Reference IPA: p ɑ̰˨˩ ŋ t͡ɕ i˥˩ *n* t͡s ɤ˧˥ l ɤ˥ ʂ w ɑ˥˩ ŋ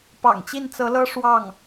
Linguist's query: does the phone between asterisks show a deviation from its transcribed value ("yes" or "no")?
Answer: no